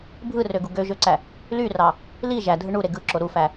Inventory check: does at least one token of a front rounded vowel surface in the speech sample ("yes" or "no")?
yes